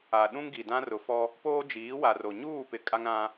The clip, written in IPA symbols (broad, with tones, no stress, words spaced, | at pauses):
a˨ɗũ˦ŋɡi˨dã˦ rʊ˨fɔ˦ | poː˦d͡ʒiː˨˦wa˨ro˨ ɲuː˦˨pɪ˨ kʼa˦ŋɾã˦